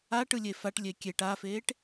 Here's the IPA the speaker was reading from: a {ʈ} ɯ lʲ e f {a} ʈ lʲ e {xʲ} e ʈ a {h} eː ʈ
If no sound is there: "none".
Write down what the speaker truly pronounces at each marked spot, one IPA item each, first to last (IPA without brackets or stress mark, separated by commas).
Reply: ʈ, a, kʲ, f